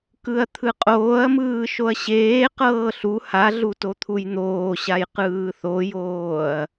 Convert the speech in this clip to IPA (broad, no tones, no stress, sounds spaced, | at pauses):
k ɯ ɐ̯ t̪ʰ ɯ qʼ oː ɐ̯ m ɯː ʃ o ɐ̯ ɕ eː q ɤː ɬ u h a ɮ u t o t̪ʰ u j n̪ oː ɕ a j q ɯː θ o j oː ɐ̯